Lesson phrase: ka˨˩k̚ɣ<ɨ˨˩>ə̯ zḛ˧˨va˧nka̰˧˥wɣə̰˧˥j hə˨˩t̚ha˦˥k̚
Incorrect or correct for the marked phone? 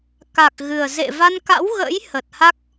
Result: correct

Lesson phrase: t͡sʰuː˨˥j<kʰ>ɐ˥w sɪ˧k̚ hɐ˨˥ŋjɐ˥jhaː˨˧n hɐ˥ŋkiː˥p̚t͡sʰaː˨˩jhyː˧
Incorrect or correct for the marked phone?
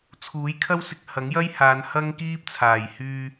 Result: correct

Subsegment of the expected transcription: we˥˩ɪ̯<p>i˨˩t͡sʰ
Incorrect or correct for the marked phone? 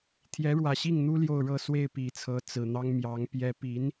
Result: correct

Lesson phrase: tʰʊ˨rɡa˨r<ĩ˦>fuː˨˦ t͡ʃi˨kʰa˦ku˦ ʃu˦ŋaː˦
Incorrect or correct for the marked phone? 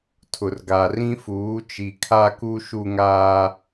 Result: correct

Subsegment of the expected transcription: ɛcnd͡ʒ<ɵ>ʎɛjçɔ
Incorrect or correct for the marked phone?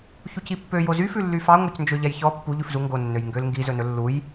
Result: incorrect: ø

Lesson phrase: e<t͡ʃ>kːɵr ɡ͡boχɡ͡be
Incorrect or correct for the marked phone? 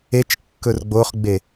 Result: correct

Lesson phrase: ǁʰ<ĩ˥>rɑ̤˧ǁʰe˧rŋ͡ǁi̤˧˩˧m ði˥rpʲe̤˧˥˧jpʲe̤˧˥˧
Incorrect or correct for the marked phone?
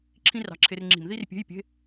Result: correct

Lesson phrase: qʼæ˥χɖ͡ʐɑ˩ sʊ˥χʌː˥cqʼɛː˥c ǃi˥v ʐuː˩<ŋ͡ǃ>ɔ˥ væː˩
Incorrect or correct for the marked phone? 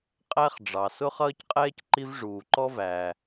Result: incorrect: ǃ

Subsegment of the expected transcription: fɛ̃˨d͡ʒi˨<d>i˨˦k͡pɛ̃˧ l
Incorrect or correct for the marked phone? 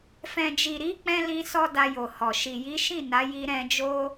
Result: incorrect: ɾ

